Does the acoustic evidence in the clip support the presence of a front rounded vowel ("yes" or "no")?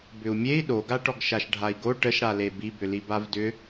yes